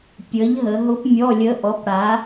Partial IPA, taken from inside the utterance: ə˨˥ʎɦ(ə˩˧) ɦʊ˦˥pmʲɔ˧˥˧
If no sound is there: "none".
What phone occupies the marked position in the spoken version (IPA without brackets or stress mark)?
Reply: ə˩˧